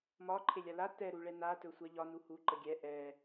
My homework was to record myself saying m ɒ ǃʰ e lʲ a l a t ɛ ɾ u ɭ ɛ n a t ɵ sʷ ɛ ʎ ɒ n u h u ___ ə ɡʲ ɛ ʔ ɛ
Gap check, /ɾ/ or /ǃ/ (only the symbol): ǃ